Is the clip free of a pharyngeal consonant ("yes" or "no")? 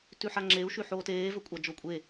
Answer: no